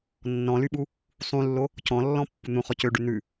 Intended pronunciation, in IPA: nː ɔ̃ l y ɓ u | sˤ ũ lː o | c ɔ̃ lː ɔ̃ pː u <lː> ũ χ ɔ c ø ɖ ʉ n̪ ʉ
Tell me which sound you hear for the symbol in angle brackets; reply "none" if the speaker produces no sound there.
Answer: n̪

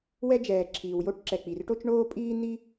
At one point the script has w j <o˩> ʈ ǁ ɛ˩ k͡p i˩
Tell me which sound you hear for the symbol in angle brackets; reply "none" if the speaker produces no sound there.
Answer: o˥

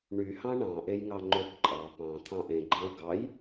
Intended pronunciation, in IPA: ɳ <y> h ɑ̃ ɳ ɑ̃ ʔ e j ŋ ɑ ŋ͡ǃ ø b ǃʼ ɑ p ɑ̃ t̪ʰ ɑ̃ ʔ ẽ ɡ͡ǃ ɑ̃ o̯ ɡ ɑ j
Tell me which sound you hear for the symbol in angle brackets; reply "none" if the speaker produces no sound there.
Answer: y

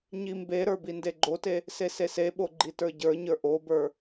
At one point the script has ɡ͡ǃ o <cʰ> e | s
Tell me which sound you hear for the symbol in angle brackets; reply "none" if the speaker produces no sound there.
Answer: t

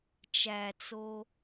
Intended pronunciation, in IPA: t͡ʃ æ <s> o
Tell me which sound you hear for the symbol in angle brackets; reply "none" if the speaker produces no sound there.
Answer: t͡s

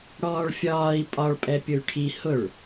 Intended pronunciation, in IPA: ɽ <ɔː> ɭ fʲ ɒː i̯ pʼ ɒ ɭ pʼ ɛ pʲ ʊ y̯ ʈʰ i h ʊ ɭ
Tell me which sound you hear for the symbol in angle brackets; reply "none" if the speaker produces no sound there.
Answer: ɔː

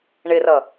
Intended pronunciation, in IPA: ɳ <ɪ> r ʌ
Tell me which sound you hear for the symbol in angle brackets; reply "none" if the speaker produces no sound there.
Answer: ɪ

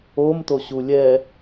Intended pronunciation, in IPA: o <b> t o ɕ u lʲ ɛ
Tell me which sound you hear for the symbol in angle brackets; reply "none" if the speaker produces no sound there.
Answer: m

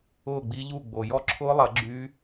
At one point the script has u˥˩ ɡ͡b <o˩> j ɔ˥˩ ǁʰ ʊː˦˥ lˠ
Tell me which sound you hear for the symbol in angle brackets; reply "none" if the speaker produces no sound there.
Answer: o˩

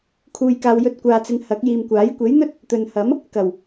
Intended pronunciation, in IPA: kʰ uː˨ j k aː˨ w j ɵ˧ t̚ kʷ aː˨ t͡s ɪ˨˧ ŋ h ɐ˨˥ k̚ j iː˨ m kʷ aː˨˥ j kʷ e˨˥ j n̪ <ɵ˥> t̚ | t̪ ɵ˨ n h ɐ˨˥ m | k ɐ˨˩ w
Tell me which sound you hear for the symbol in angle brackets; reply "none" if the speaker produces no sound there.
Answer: ɵ˥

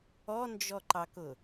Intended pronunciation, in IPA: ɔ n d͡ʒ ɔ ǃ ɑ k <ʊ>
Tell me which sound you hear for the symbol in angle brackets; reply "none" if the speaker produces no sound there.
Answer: ʊ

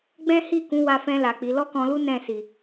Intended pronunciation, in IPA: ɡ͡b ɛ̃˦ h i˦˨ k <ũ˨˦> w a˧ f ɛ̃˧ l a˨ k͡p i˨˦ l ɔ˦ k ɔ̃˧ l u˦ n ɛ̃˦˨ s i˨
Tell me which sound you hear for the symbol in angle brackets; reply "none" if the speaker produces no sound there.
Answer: ũ˨˦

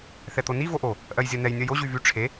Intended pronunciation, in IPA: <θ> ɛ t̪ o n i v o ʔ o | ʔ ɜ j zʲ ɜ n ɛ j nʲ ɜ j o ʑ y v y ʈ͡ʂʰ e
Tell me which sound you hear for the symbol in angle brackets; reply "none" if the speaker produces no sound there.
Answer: θ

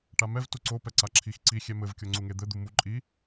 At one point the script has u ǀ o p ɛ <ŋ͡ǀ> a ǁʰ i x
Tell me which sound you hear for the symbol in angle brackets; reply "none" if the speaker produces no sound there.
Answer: ǀ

